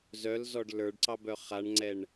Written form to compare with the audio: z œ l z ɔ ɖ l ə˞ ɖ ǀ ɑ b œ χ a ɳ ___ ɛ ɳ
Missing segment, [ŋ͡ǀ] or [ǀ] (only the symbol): ŋ͡ǀ